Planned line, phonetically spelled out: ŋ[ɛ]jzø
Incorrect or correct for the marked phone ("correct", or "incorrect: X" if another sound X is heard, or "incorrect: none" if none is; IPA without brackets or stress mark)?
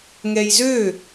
correct